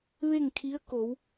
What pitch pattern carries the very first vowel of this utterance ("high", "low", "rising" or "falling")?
falling